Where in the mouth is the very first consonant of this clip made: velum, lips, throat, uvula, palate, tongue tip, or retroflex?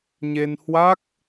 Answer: palate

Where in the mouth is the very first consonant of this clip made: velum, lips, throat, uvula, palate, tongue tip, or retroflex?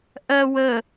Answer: throat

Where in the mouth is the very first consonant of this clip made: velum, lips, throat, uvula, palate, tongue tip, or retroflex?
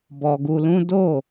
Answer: lips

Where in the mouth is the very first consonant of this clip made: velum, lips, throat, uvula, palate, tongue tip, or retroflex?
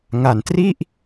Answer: velum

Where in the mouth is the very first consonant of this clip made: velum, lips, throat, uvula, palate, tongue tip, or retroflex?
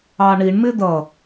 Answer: retroflex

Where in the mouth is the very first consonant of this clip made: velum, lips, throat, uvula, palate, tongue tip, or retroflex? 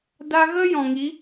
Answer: tongue tip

